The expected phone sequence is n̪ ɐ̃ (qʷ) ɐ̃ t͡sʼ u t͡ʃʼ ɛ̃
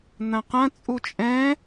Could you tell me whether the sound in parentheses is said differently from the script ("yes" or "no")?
yes